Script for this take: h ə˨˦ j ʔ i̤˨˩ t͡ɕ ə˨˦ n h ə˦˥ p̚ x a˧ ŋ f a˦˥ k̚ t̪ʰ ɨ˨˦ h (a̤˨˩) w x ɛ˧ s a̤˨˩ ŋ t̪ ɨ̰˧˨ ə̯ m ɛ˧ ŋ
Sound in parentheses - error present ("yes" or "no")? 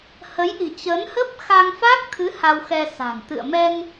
yes